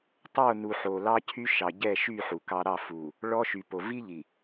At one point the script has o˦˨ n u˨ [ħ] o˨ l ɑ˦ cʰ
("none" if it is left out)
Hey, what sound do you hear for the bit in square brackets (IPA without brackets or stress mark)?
ħ